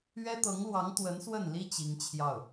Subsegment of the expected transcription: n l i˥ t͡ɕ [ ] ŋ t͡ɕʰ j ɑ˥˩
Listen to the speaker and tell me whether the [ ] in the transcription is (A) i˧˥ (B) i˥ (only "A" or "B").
A